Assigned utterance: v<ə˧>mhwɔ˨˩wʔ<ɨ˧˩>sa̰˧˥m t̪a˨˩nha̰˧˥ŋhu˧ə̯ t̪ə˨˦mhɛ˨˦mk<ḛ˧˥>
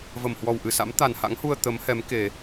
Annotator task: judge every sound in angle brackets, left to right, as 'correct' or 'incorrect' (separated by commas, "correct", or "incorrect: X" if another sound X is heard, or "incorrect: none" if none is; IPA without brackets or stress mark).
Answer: incorrect: ə˧˩, correct, incorrect: e˨˩